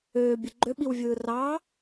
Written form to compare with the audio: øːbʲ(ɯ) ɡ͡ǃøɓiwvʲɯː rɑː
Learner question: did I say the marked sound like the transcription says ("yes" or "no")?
yes